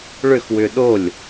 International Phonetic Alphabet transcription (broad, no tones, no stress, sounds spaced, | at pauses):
ɭ ʏ x w ʏ ɗ o lʲ